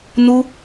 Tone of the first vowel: high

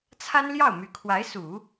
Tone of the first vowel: high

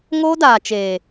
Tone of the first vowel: high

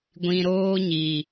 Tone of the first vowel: low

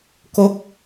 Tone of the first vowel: falling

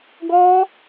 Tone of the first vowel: high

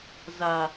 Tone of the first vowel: low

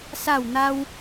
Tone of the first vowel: falling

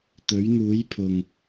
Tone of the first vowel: rising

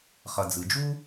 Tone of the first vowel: low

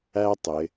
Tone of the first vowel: high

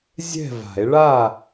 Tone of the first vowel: falling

